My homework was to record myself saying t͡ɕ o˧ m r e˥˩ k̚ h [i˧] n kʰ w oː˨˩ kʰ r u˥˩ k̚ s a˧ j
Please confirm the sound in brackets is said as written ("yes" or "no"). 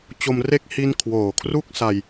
yes